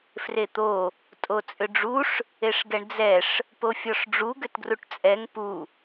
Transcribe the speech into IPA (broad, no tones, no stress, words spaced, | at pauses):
fret̪o | tʼot͡sʼʏɖ͡ʐuʂ | eʂɡɛɳd͡zɛʂ | pofʲɔʂɖ͡ʐu ɡʏtɡruʈt͡sʼɛŋ pu